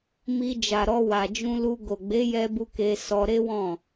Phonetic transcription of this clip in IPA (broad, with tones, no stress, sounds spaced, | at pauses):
m i˧ d͡ʒ a˨ ɾ ɔ˧ w a˨ d͡ʒ ũ˧ l u˧ ɡ o˨ ɡ͡b e˨˦ j ɛ˧ b u˧ k e˧ s ɔ˧ ɾ e˦ w ɔ̃˦˨